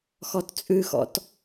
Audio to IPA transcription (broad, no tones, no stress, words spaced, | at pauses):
xɔtt͡sʼʉxɔ̰t